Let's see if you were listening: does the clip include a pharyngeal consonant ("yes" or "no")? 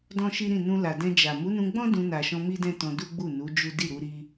no